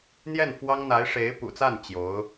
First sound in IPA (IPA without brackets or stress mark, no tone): n̪